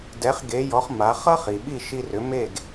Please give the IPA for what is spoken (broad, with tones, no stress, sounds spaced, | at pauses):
d ɛ˩˥ χ ɡ e˩˥ j ɔ˩˥ χ m a˩˥ χ ʌ˥ χ i˩ ɓ i˥˩ ʃ i˧ r ʏ˩˥ m e˥˩ ɡ